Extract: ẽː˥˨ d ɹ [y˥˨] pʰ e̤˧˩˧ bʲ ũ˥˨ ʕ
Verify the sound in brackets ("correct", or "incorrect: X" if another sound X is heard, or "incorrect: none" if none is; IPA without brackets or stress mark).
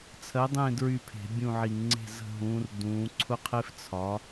correct